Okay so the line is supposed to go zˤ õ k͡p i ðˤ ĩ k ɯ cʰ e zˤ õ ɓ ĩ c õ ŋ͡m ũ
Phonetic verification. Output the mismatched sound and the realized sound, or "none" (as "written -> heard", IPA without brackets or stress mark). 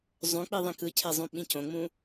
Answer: none